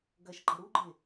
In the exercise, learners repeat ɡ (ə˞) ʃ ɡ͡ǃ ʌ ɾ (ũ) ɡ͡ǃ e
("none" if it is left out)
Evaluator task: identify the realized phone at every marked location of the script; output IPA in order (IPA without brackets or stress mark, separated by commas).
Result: ɐ, u